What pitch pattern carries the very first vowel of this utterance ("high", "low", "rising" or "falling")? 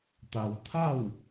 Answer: low